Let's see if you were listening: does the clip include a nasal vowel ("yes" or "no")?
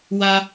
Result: no